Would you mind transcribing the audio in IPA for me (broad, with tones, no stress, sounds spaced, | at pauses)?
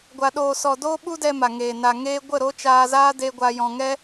ɡʷ a˧ ɗ oː˧ s ɔ˧ d oː˦ ɓ u˦ d ɛ˧ m a˨ ŋ eː˨ n a˨ ŋ eː˧ ɡʷ ə˦˨ ɾ o˦ t͡ʃ aː˧ z aː˦ d e˧ ɡʷ a˧ j ɔ̃˧ ŋ ɛ˦